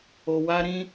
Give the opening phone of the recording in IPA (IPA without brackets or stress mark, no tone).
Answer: o